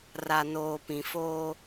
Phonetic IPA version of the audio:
r a˨ n oː˨ p ĩ˨ f oː˦

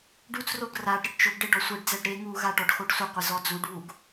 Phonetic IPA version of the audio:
ɖ u t͡s r o ɡ r a ɖ ɾ ɪ ɖ t͡ʃ ʊ ɡ ɖ e ɖ ɔ sʷ e ɖ d͡z ɛ ɖ ɾ e ŋ u ɣ a ʈ ɔ ɖ x o ɖ sʷ ɪ qʷ ɪ z ɔ d͡z u ɖ β u ɡ

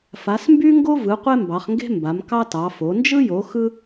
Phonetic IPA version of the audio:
f a˨˦ s m b y˥ ŋ ɡ o˥ v ɯ˨˦ qʷ e˥ m b ɑ˨˦ χ ŋ ɡ e̤˥ m b a˨˦ m k ɑ˥ t ɑ˨˦ f o˨˦ n d͡ʒ ɯ˥ j o˨˦ x ɯ˥

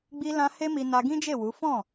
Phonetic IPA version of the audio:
ɡ͡b i˧ l ã˧ h e˦ m i˧ n a˧ ɡ ĩ˦ d͡ʒ e˦˨ w u˨˦ f ɔ̃˦˨

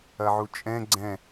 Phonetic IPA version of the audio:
ɐ ʕ u t͡ʃʼ ɛ̃ ɡ͡ǀ ɛ̃

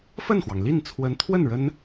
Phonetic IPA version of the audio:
f ə˥˩ n x w ɑ˩ ŋ l i˥˩ n t͡sʰ w ə˧˥ n t̪ʰ w ə˥˩ n ɻ ə˥ n

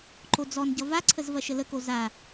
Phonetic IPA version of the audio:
ǃ o d͡z ɔ n ɟ ʌ v a ǀʰ ə z v ɐ ʃ ə l ə k o z a

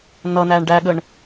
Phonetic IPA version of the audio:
n ʌ n æː ɳ ɖ æ ɠ ə ɳ

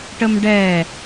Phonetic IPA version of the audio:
ʈ ə m ɖ ɛ

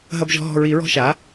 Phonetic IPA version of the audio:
ɦ ɐ˦ b ʒ ɔ̤˦ ɦ ɔ̤˦˨ ɹ i˨˩˦ ɹ ɔ̤˦ ʃ a˩˥

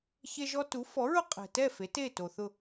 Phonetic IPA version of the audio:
ç e˦ ʒ ɔ˦ t u˨˥ f ɔ˨˥ ɹ ʊ˦ qʼ ɛ̤˨ t ɛ˥˨ f e˨˥ t e˥˨ t o˨ θ ʊ˥˨

